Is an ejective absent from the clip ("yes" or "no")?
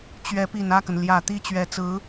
yes